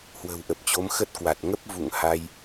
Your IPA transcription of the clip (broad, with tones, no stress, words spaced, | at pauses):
hwə̤˨˩wʔə˨˩p̚t͡ɕo˨˦m xə˦˥t̚kwa˨˩t̚ ŋə˦˥p̚vṵ˧˨ŋ ha˧j